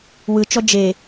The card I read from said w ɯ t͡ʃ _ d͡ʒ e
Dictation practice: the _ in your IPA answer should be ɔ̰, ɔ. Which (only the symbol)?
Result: ɔ